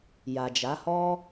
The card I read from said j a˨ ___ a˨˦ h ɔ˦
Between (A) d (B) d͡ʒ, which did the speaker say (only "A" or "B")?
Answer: B